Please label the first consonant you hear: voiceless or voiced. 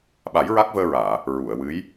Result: voiced